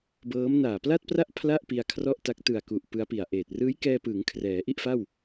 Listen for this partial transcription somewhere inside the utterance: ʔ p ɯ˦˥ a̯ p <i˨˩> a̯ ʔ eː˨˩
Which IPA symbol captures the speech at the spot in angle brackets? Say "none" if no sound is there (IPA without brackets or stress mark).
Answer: i˨˩